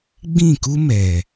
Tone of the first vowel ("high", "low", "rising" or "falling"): falling